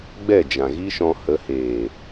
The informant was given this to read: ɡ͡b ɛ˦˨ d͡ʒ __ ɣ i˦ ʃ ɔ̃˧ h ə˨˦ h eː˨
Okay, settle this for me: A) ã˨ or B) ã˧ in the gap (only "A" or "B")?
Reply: A